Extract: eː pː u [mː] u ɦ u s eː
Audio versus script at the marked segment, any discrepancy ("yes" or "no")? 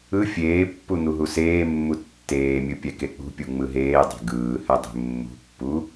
yes